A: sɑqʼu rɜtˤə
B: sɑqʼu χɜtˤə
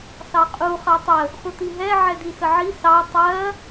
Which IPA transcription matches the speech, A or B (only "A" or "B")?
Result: B